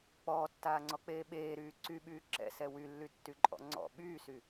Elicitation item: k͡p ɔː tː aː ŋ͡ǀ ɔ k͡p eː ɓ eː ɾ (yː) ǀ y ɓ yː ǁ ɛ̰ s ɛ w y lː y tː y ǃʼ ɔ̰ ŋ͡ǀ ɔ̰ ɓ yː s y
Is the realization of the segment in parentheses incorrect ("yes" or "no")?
no